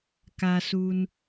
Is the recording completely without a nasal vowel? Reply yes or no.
yes